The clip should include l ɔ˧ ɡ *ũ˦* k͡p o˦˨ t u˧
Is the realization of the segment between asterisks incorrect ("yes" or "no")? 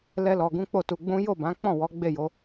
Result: no